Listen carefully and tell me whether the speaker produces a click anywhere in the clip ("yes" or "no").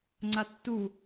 yes